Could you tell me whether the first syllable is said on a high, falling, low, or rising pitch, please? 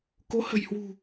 rising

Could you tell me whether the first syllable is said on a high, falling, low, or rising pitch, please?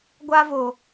high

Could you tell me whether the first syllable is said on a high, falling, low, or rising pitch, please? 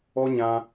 high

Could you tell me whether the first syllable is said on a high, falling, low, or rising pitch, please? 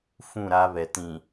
falling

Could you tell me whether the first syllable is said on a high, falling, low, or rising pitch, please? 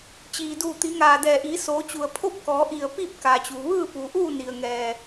low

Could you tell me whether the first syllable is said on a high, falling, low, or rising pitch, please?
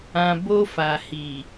low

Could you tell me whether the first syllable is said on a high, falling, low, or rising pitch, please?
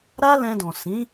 high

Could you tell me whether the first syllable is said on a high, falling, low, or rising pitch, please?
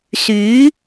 rising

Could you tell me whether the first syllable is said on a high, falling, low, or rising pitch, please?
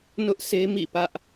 high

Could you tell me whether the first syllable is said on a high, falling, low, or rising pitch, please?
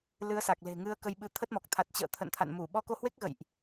rising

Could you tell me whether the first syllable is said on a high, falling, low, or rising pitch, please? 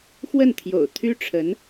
falling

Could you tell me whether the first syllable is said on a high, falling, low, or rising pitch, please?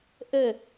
falling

